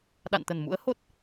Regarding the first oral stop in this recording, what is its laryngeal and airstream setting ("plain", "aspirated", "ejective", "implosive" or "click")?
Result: implosive